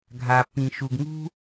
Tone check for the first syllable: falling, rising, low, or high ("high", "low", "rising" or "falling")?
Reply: low